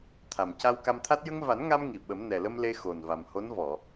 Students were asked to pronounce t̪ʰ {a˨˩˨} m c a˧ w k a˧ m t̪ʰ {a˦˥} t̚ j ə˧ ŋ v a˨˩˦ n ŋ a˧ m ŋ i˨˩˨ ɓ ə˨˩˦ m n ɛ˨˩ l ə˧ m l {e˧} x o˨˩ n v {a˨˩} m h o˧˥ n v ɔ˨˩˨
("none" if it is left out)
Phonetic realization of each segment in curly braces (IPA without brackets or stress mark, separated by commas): a˨˩, a˦˥, e˧, a˨˩